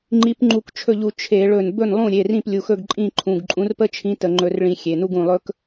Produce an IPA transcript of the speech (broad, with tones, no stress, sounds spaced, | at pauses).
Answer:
ŋ͡ǃ i˨˥ p ŋ͡ǃ u˧˩ k t͡ʃʰ ɵ˥˩ ʎ u˧˩ t͡ʃʰ e˧˩˧ ɭ ɵ˧˩ n b ɵ˥˩ n lˠ ũ˥˩ ɾʲ e˩˧˩ r ĩ˥˩ p lʲ u˩˧˩ x ɵ˥˩ ɡ ǃʼ ĩ˥˩ ǃʰ ũ˩˧˩ ɡ ǃʼ ũ˨˥ r p ə˥ t͡ʃʰ ĩ˨˥ t ə˧˩˧ ŋ͡ǃ ɵ˧˩˧ r ɭ ĩ˧˩˧ xʲ e˩˧˩ n u˥ ɡ ũ˥˩ lˠ ɵ˥ k